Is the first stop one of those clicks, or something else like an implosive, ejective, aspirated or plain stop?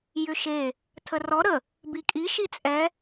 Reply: aspirated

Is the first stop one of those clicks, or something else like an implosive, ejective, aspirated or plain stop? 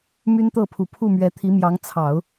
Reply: plain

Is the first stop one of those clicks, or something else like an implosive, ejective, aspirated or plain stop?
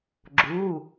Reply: click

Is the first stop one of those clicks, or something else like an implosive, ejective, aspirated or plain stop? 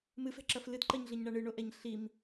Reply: click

